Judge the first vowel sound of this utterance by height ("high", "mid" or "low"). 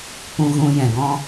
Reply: high